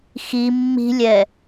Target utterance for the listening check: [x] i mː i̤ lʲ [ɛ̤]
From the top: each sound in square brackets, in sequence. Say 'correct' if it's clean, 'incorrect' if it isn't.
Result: correct, incorrect

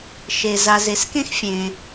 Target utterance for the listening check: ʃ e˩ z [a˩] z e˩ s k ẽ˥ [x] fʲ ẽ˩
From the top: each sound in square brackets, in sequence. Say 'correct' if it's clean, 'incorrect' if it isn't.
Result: correct, correct

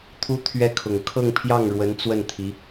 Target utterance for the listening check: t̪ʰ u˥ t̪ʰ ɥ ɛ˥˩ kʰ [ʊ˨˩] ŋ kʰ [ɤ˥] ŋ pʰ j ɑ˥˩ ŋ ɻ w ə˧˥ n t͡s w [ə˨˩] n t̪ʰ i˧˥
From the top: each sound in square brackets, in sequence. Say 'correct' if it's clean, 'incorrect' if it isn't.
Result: correct, incorrect, incorrect

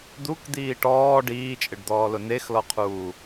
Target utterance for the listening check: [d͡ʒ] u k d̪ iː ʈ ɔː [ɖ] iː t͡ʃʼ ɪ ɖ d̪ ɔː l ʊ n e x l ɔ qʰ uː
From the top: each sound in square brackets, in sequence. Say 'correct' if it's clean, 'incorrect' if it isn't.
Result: incorrect, correct

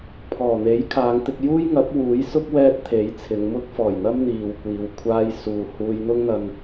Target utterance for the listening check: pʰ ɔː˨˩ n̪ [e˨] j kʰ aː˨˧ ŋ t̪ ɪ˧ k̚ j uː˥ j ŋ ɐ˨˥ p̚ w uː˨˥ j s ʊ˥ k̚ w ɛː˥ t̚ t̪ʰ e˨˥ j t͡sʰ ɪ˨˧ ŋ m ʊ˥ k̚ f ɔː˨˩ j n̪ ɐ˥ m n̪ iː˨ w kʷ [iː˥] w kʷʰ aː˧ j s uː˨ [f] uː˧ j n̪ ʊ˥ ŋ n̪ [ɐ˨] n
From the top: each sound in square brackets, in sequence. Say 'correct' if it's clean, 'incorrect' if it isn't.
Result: incorrect, incorrect, incorrect, incorrect

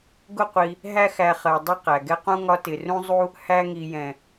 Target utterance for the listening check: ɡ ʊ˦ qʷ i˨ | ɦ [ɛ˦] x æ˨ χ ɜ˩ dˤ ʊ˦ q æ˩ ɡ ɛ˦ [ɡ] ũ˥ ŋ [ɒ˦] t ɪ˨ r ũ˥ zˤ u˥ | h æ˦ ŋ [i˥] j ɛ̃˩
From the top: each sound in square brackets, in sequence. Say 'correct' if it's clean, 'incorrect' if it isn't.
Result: incorrect, incorrect, correct, incorrect

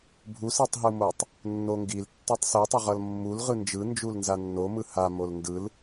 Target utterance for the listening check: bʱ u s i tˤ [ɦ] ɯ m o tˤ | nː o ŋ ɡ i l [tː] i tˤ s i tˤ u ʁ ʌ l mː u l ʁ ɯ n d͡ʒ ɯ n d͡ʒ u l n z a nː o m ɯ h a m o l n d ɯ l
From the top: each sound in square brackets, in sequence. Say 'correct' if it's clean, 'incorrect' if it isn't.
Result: correct, correct

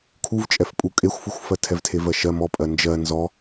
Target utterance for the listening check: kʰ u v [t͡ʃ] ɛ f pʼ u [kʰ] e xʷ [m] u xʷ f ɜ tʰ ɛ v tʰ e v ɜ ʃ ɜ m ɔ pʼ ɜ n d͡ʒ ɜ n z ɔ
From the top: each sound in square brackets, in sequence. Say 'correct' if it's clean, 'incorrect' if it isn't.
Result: incorrect, incorrect, incorrect

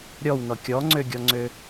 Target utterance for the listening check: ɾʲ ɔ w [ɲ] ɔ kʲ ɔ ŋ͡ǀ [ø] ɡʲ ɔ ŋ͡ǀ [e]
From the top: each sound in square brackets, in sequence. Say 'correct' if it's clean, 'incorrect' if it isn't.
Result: incorrect, correct, incorrect

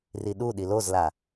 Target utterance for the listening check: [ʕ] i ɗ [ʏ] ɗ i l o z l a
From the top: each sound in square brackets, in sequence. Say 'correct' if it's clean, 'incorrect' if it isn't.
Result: incorrect, incorrect

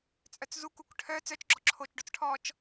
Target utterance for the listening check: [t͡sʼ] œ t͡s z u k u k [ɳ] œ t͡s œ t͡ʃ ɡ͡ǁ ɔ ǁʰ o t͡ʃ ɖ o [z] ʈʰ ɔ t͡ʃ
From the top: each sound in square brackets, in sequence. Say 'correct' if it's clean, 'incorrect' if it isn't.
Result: correct, incorrect, incorrect

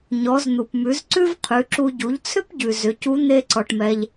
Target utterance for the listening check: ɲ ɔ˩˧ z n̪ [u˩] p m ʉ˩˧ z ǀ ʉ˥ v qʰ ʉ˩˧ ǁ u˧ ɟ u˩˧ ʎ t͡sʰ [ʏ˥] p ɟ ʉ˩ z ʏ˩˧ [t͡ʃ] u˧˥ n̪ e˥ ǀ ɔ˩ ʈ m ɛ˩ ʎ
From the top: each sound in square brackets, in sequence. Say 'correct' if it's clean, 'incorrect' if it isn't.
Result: correct, correct, incorrect

